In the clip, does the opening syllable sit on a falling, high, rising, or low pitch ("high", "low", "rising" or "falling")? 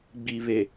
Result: low